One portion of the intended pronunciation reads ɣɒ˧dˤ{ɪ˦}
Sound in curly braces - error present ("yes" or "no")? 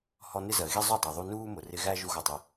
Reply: yes